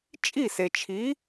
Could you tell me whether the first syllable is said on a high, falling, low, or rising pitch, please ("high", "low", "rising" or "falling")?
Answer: falling